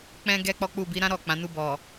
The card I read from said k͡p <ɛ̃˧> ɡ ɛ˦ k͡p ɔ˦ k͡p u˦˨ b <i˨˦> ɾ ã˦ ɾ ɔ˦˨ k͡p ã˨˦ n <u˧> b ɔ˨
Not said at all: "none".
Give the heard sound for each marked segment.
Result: ɛ̃˧, i˨˦, u˧

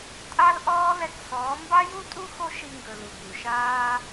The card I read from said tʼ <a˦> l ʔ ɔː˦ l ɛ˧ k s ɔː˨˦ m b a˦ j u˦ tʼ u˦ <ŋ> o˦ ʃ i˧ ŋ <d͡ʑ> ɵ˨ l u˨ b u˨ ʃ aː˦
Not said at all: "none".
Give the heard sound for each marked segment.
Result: a˦, x, ɡ

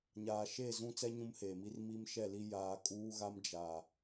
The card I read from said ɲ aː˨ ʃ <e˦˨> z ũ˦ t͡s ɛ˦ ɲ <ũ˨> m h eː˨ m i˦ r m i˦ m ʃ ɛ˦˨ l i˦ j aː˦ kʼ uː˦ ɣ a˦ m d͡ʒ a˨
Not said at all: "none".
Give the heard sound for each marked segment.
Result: e˦˨, ũ˦

